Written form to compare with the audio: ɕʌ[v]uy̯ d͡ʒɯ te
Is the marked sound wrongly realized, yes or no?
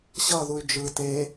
yes